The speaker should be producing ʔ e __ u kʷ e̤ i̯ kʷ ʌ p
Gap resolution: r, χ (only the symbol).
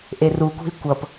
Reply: r